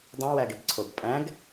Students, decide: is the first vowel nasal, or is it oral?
nasal